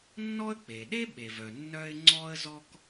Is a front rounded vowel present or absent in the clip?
present